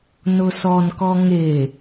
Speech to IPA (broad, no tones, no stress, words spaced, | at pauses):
nʊsɔnkɔ ŋe